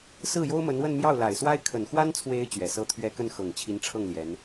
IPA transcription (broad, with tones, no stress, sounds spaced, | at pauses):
s ɹ̩˥˩ j o˥ ʊ̯ m ə˧˥ n w ə˥˧ n m j ɑ˥˩ ʊ̯ l a˨˩ ɪ̯ s w a˥ ɪ̯ kʰ ə˨˩ n x w a˥ n t͡sʰ w e˧˥ ɪ̯ t͡ɕ ɥ ɛ˨˩ s ɤ˥ t̪ʰ ɥ ɛ˥ k ə˥˩ n x ɤ˨˩ ŋ t͡ɕʰ i˧˥ n ʈ͡ʂʰ ɤ˥˩ ŋ l j ɛ˧˥ n